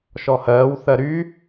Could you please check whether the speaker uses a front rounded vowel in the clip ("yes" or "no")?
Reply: yes